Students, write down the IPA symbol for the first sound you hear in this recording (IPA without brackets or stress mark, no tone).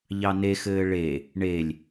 ʎ